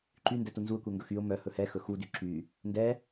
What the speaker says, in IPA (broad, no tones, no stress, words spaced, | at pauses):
ǃyndɛ tunzuə̯kʷɛ ŋɡɵxyʊ̯ mœ hɵhɛ xɵxudy ǁy | ndɛ